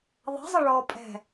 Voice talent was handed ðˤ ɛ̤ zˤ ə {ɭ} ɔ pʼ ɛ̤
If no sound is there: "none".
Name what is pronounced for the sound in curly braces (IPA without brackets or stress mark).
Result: ɭ